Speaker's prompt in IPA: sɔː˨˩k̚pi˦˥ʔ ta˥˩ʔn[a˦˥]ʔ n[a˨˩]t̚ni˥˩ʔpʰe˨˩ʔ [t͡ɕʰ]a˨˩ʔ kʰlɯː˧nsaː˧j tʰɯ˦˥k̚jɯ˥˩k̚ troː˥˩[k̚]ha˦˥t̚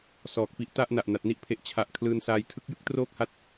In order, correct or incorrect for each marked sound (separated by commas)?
incorrect, correct, correct, correct